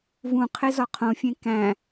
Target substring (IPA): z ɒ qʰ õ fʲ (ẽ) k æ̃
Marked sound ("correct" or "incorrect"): correct